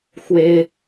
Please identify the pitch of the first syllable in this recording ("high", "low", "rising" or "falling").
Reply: high